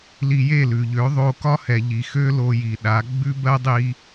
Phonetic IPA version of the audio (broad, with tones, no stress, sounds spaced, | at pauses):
l i˧ j e˦˨ l ʉ˨ ʎ ø˨˦ ðˤ o˧ k ɒ˦ h ɛ˨ ʎ i˨ x ø˦ l o˧ j i˨ ɗ a˨˦ ɡ͡b ʉ˦ b ɜ˦ dˤ i˦